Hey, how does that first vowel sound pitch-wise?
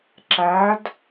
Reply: rising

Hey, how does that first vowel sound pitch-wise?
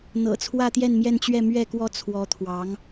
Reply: low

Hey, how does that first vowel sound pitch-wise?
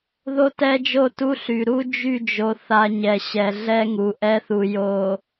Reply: high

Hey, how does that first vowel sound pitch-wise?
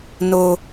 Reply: high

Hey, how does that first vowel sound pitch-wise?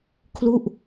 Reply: falling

